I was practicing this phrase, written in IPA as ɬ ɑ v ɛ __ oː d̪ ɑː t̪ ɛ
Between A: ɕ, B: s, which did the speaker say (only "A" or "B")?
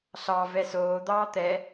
B